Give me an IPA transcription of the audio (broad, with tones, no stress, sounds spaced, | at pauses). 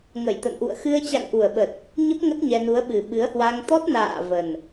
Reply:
ŋ ə˧˩ j t̪ ə̰˧˨ n ʔ ṵ˧˨ ə̯ x ɨ˧ ə̯ t͡ɕ a̰˧˨ ŋ ʔ u˨˩ ə̯ ɓ ə˨˩ t̚ | ɲ ə˦˥ p̚ ŋ ə˦˥ t̚ ɲ ɛ˧ n u˨˦ ə̯ ɓ ɨ˨˩ ɓ ɨ˨˦ ə̯ h w a˧ ŋ t̪ ɔ˦˥ t̚ n a̰ː˧˨ v ə˨˩ n